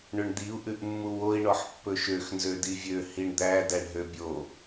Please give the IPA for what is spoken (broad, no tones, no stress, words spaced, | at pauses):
ɳøɳd̪iu̯ ʔʉʔmːuwoi̯ ɳɔħpːɵʃøx nzødivʲø hiɳd̪æ dæɳɦøbʲo